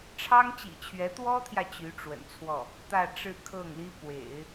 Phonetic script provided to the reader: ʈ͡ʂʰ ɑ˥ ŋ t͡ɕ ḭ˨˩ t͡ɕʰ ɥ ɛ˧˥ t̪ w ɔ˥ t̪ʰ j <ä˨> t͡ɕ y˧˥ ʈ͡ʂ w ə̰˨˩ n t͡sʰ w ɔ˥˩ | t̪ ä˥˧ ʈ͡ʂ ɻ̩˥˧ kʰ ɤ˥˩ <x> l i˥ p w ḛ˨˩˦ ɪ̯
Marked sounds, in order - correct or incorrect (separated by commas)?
correct, incorrect